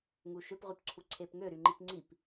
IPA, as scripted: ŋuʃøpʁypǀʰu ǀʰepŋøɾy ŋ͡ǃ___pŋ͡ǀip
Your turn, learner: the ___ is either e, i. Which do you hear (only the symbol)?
i